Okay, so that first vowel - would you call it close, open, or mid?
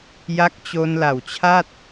open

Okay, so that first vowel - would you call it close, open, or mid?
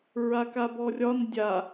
open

